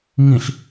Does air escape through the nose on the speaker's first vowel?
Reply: yes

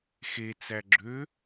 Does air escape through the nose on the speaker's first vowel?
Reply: no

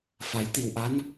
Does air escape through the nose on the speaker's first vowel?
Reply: no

